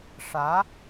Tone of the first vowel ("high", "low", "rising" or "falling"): rising